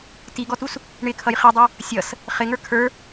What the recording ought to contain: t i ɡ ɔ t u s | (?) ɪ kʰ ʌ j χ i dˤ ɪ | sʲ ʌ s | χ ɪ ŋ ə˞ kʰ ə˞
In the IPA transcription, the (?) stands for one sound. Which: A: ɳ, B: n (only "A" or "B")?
A